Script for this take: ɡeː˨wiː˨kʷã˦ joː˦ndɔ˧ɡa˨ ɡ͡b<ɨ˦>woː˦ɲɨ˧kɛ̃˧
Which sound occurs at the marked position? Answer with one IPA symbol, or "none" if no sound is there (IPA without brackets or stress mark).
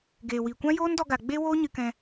e˦